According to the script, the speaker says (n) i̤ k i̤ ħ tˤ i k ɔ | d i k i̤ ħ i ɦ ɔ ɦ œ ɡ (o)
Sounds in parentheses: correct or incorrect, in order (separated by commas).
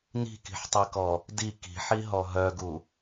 correct, incorrect